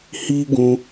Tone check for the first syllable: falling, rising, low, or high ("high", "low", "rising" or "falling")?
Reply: high